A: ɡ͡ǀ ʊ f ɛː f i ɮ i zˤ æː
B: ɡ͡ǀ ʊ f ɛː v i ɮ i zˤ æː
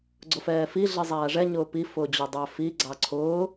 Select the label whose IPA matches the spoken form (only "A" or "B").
A